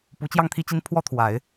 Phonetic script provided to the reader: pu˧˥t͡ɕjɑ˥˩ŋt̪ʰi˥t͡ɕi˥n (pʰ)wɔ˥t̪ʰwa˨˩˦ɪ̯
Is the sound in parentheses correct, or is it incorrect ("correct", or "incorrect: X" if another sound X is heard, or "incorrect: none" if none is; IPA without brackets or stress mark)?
correct